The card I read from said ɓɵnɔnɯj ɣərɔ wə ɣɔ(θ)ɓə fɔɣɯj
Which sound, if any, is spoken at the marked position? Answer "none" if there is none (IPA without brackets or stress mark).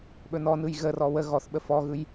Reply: θ